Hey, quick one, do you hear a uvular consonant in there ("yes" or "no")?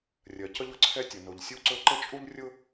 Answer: no